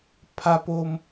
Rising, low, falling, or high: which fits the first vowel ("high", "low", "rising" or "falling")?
high